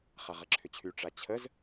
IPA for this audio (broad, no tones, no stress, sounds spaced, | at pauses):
χ a ʁ ɐ ǁʰ ʏ t͡ɕʰ y ʈ͡ʂ a t͡ɕʰ ə z